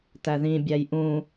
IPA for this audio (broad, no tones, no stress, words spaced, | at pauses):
tæðĩ bʲæjʔũ